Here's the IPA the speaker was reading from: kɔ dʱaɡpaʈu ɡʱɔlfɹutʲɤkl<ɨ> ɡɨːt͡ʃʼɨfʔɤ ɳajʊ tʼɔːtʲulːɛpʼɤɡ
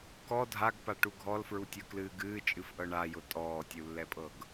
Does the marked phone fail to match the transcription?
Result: yes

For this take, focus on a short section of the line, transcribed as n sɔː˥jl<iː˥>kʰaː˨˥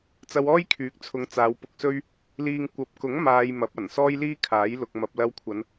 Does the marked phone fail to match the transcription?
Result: no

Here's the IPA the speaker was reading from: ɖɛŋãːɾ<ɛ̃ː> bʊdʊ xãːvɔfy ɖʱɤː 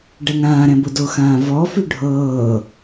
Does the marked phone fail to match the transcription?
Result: yes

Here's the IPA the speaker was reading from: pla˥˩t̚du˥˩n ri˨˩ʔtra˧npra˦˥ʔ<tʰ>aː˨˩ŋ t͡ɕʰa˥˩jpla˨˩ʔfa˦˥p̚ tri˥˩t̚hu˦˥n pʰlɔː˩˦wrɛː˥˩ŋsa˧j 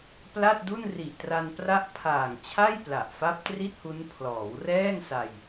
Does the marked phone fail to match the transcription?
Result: yes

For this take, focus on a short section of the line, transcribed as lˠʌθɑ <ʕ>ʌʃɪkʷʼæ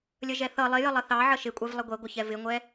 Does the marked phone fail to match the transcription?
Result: no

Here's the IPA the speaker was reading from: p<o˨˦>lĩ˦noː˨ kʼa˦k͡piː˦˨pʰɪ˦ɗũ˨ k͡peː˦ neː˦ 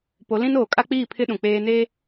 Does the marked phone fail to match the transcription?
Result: no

